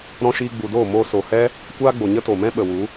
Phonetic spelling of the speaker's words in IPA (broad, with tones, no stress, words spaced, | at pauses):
ɾɔ̃˧ʃiː˧ɡ͡bu˨doː˦˨ mo˧ so˨hɛ˦ | kʷaː˦ɡ͡bo˨ ɲə˦to˨mɛ̃˦ɓə˨ wu˨˦